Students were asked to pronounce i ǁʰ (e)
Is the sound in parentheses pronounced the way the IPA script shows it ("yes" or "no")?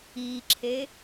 yes